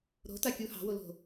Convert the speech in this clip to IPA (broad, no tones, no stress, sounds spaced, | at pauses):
ɾ o̤ t a kʲ u h ɑ̤ w o l o̤